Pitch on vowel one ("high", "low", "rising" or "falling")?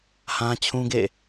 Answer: high